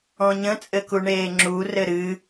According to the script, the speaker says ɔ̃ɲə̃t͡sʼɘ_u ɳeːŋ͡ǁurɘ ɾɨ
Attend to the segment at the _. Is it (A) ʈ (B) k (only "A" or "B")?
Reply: B